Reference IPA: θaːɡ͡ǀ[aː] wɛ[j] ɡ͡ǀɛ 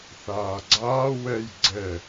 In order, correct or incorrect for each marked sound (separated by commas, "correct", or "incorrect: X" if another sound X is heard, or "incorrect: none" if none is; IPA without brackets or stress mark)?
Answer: correct, correct